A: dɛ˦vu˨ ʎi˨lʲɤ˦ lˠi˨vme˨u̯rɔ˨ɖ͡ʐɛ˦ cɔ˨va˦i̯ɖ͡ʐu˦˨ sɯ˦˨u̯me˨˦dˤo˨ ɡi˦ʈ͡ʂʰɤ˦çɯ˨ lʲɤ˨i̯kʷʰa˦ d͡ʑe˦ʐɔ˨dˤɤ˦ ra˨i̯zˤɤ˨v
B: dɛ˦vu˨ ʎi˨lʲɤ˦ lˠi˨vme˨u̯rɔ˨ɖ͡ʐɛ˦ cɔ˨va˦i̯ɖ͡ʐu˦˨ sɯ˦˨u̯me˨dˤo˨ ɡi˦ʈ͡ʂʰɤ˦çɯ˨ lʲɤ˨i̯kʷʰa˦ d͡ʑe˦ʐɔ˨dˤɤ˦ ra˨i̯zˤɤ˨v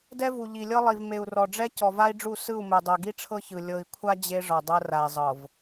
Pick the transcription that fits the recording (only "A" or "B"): B